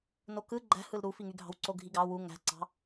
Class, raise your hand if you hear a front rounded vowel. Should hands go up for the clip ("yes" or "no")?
yes